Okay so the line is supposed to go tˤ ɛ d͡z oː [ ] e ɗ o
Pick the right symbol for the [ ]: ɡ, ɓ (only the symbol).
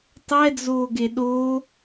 ɡ